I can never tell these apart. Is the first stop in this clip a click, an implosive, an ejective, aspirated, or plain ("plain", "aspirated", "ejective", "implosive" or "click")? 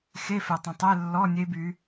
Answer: plain